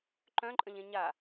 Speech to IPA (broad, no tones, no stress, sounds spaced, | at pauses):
ǃ œ̃ ǃʼ ə̃ ʎ ẽ ɲ a